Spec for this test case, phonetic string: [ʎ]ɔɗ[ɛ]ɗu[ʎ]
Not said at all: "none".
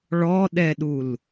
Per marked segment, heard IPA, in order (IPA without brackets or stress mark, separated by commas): ɭ, ɛ, l